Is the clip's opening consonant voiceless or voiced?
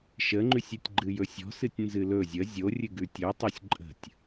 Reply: voiceless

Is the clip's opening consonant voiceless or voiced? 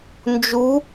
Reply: voiced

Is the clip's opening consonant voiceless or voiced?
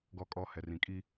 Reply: voiced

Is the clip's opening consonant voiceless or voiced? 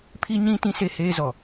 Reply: voiceless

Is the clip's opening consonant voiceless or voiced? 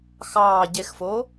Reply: voiceless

